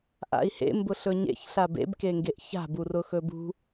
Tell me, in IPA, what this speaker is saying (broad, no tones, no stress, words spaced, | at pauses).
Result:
ʔa̰i̯hḛ mbʊɬɵɲḛçɬab ḛbkeŋɡeʔ ça̤bu rʊxɵbṳ